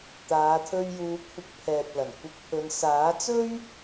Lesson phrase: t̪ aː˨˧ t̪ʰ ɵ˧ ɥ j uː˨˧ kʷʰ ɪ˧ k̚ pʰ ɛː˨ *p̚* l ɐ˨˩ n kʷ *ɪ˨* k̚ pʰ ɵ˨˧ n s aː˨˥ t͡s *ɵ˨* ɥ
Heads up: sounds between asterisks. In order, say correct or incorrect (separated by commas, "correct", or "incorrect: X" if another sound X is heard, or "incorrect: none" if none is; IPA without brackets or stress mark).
correct, incorrect: ɪ˧, incorrect: ɵ˥